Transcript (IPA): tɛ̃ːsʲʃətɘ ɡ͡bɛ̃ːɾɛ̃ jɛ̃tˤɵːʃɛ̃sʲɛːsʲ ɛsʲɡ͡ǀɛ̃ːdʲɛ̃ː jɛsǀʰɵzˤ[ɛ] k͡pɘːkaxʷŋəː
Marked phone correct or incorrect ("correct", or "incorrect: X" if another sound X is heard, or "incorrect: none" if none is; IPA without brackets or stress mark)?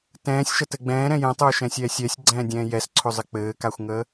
incorrect: ɘ